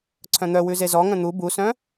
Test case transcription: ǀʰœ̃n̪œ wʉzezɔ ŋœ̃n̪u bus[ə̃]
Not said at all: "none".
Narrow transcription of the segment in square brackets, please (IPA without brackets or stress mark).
œ̃